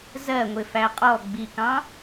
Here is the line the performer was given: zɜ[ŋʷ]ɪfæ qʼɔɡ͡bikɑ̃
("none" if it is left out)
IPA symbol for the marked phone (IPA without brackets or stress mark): ŋʷ